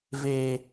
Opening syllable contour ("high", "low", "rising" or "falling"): low